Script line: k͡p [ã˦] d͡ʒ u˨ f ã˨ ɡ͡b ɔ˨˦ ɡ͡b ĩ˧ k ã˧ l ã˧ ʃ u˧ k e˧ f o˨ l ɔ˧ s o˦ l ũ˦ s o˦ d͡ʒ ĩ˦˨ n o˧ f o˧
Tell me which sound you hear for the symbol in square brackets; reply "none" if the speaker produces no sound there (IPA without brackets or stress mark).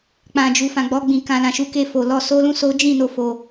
ã˨